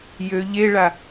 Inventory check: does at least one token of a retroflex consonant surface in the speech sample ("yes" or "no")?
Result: yes